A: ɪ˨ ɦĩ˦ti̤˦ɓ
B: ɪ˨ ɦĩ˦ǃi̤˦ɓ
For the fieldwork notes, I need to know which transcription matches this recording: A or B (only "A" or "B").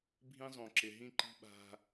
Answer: B